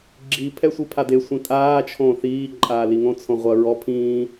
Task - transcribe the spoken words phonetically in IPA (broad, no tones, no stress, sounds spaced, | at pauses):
ɡ͡ǁ i pʰ ɛ sʷ i pʰ a d e sʷ ĩ tʼ aː t͡ʃʰ õː θ iː ǃʼ aː l i ŋ õ t͡sʰ õ ʁʷ ɐ ɹ ɔ pʰ ĩː